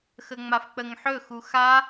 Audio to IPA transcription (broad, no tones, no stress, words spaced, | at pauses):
xəŋ͡mafk͡pəŋħɵ xuxa